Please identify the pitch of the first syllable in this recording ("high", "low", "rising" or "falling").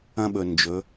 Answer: high